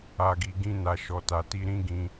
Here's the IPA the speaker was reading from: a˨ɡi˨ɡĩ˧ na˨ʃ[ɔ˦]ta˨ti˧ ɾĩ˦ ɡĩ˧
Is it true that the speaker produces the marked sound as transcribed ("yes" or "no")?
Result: no